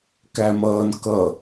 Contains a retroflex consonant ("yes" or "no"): no